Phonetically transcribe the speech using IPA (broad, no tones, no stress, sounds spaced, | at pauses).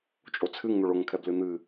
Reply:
t͡ʃʼ o t͡sʰ ɨ ŋ n̪ o ɭ o ŋ kʰ ɛ b l ɨ n̪ ɨ